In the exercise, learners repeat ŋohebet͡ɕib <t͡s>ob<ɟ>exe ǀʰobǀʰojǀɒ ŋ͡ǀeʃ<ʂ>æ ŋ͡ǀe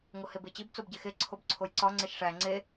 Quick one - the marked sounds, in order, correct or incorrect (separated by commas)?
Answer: correct, correct, correct